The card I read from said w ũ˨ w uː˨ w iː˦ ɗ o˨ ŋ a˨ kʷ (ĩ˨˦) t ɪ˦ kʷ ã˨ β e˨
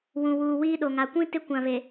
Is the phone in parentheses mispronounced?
yes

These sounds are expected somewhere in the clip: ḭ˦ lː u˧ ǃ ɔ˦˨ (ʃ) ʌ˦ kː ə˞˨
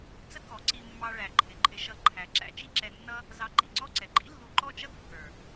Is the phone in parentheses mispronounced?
yes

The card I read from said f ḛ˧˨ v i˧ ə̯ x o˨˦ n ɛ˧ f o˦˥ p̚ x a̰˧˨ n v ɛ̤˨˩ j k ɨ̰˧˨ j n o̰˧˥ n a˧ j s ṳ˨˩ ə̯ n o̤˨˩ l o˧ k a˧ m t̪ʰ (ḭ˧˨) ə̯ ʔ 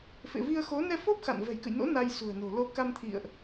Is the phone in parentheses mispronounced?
no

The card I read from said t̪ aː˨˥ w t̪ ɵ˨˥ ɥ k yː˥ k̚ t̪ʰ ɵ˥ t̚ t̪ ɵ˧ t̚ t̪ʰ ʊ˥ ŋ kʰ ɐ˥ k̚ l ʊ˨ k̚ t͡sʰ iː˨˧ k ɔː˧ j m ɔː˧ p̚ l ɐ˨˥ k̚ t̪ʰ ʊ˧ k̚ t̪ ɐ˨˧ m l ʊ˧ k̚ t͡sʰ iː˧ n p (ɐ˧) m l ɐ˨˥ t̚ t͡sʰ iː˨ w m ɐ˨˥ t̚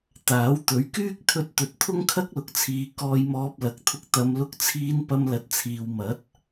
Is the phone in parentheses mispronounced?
no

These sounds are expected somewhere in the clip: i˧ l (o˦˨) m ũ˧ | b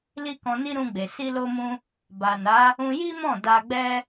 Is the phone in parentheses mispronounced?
yes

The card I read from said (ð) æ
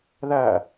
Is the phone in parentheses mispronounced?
no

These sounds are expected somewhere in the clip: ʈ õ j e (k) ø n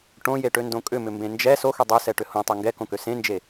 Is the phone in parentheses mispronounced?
yes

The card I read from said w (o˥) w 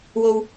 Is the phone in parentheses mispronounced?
yes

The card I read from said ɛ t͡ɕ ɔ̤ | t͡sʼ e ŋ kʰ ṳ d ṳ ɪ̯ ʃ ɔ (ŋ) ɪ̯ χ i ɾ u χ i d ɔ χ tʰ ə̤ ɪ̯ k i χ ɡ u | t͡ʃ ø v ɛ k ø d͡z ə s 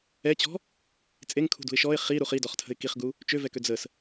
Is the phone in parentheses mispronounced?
yes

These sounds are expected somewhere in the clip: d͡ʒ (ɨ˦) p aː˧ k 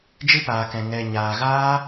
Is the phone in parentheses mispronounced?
no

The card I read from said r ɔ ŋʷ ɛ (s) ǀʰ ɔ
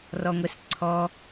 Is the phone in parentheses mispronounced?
no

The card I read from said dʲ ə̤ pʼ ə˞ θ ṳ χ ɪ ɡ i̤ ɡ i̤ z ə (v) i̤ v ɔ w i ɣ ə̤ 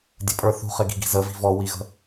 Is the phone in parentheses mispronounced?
no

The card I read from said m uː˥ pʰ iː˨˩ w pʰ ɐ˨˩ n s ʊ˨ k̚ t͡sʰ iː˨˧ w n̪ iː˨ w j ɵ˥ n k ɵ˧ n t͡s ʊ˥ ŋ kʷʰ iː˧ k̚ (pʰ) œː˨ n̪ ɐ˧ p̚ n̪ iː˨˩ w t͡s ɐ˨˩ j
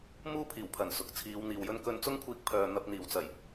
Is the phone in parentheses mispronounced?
no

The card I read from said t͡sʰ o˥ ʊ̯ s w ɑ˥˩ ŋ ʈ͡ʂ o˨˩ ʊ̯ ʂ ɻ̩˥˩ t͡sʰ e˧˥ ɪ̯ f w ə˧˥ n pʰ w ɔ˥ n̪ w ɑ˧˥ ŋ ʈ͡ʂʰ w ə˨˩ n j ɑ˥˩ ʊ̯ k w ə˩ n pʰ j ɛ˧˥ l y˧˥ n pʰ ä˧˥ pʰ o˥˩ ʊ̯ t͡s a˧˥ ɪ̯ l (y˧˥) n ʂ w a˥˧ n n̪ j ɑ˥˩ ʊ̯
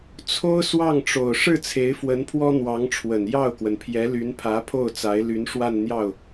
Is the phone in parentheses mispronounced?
no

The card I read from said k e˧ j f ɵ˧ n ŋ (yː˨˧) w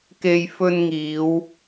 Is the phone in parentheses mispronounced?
yes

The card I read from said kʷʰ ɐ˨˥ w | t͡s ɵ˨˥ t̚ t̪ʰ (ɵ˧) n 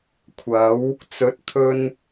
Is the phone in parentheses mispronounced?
no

